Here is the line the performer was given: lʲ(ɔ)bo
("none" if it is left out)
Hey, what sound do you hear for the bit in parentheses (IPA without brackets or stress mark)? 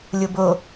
o